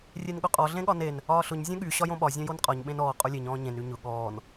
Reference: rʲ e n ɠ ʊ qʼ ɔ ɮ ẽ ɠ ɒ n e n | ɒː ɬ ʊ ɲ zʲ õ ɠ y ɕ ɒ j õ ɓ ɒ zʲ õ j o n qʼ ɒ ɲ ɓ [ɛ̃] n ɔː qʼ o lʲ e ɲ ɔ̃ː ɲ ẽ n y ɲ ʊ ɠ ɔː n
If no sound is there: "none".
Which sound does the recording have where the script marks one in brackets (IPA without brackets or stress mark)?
ẽ